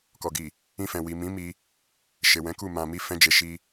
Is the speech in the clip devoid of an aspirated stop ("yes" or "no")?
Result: yes